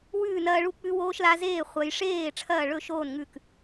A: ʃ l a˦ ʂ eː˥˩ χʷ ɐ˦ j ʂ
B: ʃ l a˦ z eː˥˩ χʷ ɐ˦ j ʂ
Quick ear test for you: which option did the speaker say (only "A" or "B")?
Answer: B